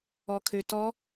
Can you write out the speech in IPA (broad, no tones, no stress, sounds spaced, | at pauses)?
ɔ kʰ ø t ɔ